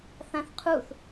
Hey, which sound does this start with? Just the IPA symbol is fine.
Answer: θ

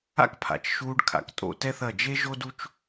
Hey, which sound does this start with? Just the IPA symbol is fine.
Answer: a̰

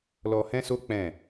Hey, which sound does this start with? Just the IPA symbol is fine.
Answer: l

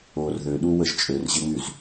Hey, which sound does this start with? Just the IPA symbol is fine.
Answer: o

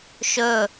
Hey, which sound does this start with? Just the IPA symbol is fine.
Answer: ʃ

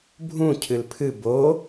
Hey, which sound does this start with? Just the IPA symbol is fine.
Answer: bʱ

